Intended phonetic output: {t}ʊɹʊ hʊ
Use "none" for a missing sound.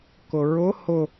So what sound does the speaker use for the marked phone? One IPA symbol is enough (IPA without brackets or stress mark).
k